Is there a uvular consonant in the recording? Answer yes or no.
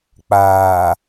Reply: no